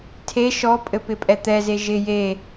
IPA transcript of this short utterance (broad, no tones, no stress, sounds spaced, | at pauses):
tʰ e ʃ ɔ pʼ ɘ p ɪ pʼ ɛ t̪ ɛ z e ʒ ɪ j e